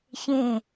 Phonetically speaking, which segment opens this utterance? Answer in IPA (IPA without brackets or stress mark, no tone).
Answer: ç